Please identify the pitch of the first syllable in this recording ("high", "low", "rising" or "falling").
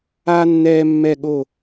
high